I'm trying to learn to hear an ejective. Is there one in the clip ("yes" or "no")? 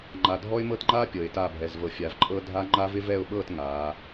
yes